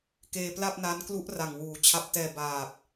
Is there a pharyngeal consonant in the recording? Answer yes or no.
no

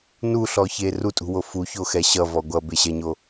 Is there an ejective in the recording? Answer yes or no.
yes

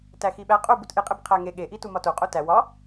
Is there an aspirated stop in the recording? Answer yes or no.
yes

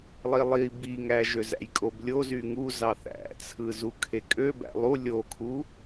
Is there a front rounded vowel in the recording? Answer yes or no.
yes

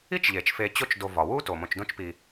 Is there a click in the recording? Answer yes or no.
no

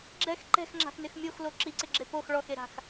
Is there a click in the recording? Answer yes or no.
yes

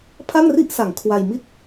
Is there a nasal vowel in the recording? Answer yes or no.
no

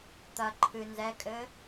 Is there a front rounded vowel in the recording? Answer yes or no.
no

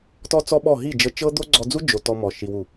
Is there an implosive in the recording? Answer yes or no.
yes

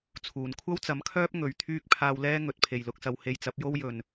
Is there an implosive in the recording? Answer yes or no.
no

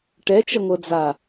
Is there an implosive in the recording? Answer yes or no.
no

